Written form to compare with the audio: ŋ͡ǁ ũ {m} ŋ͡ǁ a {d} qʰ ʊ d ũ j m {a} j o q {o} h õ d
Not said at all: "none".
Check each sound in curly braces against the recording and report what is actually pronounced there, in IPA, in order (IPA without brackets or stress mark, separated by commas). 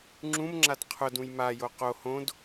m, d, a, o